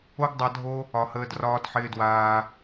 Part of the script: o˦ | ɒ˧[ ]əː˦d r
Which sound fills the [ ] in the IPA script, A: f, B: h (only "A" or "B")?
B